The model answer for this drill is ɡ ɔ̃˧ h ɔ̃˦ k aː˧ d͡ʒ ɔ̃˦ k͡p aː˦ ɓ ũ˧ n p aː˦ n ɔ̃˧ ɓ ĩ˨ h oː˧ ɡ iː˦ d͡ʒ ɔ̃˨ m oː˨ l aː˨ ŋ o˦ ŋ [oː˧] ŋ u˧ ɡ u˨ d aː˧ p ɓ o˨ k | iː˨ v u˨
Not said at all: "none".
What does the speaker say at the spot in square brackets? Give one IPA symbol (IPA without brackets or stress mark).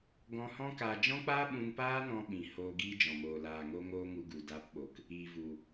oː˦